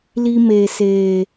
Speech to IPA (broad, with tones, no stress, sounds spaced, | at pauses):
l i˧ m eː˨ s eː˨